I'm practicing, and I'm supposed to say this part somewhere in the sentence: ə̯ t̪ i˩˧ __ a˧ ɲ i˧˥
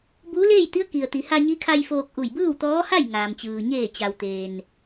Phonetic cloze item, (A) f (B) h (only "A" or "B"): B